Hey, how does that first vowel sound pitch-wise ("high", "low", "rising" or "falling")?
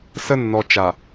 high